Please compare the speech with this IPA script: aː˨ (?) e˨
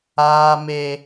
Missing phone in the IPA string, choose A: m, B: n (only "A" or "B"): A